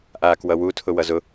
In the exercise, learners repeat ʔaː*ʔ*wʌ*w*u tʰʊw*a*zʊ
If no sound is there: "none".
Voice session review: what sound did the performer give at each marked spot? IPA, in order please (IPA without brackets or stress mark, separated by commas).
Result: k, w, ʌ